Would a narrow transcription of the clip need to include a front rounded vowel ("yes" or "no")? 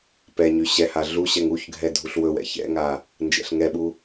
yes